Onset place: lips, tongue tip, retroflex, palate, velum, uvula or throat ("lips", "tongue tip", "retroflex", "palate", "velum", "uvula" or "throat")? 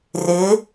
tongue tip